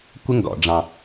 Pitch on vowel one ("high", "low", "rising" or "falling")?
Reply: high